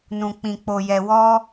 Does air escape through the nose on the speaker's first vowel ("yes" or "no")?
yes